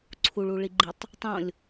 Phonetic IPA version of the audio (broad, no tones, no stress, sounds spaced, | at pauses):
ǀʰ u ɭ u ɭ i ɡ͡ǃ i tˤ | tˤ õ lʲ